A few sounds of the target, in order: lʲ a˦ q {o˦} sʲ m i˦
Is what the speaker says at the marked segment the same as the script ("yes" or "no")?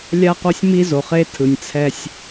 yes